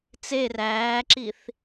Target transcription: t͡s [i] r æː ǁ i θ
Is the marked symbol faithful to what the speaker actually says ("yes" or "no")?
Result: no